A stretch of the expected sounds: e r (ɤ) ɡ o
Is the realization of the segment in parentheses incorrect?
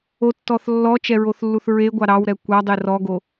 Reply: yes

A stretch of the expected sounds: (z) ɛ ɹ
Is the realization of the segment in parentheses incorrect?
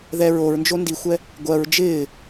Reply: yes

